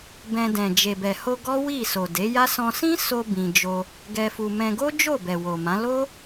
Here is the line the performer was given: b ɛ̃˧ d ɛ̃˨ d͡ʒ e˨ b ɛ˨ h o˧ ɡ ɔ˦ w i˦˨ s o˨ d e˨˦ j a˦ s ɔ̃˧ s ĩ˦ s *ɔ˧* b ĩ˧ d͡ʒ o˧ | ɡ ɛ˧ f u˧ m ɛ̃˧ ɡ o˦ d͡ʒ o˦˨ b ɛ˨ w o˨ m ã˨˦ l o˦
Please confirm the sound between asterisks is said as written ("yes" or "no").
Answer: no